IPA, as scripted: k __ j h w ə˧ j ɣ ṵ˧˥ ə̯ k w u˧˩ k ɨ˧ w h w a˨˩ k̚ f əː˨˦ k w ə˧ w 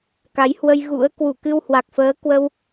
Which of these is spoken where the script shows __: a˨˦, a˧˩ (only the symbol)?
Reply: a˨˦